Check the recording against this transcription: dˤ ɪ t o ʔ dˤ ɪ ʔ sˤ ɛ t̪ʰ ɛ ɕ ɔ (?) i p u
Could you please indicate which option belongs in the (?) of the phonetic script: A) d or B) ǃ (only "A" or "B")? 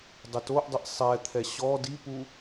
A